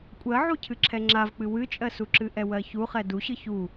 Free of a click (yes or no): no